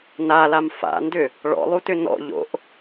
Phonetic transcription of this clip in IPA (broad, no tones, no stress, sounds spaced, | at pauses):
n a l a m f a̰ n d ʏ | ɭ ɔ̰ lˠ u t ʏ n ɔ̰ ʎ o̰ ʔ